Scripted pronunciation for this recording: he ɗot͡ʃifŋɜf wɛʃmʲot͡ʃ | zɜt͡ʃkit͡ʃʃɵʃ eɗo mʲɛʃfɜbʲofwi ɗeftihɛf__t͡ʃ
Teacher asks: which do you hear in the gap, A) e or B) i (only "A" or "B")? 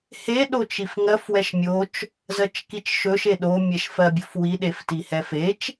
A